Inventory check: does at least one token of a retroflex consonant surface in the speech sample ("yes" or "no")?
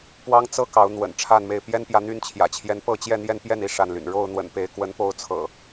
yes